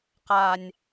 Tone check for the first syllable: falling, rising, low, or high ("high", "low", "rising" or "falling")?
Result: low